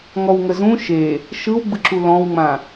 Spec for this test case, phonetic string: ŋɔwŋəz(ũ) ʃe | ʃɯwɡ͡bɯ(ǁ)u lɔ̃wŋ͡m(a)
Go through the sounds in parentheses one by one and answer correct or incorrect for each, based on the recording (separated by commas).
correct, correct, incorrect